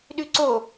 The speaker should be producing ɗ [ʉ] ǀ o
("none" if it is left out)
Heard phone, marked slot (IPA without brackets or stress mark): ʉ